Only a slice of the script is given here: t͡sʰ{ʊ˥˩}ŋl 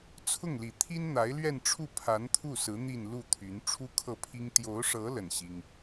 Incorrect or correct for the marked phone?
correct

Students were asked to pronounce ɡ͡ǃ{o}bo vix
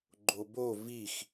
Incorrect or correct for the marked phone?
correct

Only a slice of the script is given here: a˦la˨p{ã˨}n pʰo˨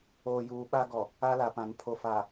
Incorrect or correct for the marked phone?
correct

